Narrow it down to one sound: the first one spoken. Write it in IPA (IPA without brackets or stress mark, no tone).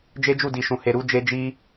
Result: d͡ʒ